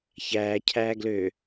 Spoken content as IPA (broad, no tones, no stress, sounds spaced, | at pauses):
ç æː cʰ æː ɡ l ø